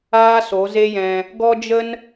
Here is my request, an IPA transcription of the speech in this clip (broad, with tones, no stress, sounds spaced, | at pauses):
aː˦ s o˨˦ z e˦ j ɛ̃˧ | ɡ ɔ˦ d͡ʒ ə˦ n